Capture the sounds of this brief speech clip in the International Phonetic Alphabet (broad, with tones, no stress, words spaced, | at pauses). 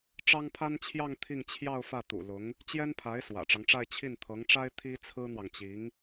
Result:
ʈ͡ʂɑ˥ŋpʰa˥nt͡ɕʰjɑ˥˧ŋ t̪ʰi˥˧ŋt͡ɕʰjɑ˥˧ʊ̯ fä˥˩t̪ṵ˨˩lʊ˧˥ŋ | t͡ɕjɛ˥npʰa˧˥ɪ̯ swä̰˨˩ʈ͡ʂɑ˦ŋʈ͡ʂa˥˧ɪ̯ t͡ɕʰi˥˩nt̪ʰɤ˧˥ŋʈ͡ʂa˥ɪ̯ t̪ʰi˥t͡sʰɹ̩˥n̪wɑ˨ŋt͡ɕi˧˥ŋ